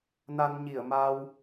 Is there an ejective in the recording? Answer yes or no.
no